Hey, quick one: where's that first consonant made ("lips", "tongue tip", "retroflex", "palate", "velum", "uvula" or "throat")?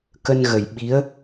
velum